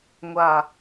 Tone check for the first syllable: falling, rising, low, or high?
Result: low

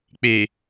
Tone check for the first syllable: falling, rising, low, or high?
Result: low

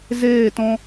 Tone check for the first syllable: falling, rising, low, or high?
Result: falling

